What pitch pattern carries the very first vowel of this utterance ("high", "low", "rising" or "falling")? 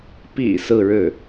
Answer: low